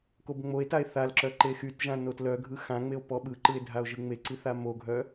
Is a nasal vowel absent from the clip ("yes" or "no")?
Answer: no